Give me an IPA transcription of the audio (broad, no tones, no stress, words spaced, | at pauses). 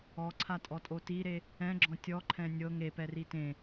ɔǀʰatʼɔtʼo tiɾe | ɛ̃ɡ͡ǁɔ̃ tʲɔǃʰɛ̃ nʲɤ ŋepɛri tẽ